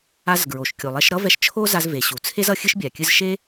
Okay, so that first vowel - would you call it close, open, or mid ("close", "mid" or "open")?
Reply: open